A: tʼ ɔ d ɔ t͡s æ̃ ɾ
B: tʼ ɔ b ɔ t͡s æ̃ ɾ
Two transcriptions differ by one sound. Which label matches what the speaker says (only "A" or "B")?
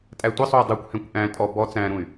B